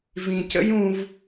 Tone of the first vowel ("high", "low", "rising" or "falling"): low